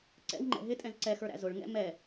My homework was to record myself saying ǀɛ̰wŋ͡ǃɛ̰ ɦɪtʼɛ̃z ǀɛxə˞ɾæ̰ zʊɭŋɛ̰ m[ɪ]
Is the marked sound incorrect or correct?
incorrect